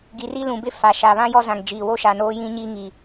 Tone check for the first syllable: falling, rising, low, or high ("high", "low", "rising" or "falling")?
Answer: low